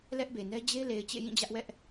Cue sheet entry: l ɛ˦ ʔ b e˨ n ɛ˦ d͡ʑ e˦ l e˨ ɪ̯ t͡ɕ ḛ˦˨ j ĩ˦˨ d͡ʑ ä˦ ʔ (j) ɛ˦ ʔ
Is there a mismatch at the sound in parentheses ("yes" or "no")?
yes